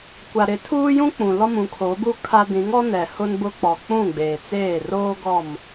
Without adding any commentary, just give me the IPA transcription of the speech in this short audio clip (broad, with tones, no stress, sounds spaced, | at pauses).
kʷ a˨ ɾ ɪ˨˦ tʰ uː˦ j ũ˦ k͡p ũ˨ l ɔ˦ m ũ˨˦ kʰ oː˨˦ b u˦ kʰ a˦ d ĩ˨˦ ŋ ɔ˦ n ɛ˨ h ʊ˦ n b ʊ˦ k͡p ɔ˨ k͡p ũ˦˨ ɡ͡b eː˨ t͡s eː˦˨ r oː˦ ɡ ɔ˦˨ m